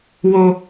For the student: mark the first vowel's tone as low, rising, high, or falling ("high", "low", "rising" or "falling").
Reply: low